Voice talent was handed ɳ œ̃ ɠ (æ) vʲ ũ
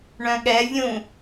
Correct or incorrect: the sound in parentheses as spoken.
incorrect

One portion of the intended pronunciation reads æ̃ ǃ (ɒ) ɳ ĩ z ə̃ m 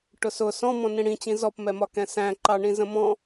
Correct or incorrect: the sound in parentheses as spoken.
incorrect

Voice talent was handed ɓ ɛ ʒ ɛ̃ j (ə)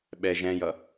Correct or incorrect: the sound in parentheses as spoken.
incorrect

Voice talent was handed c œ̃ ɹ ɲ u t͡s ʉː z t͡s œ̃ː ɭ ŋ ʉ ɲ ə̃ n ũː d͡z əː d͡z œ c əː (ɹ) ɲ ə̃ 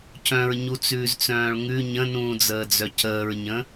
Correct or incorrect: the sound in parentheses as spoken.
correct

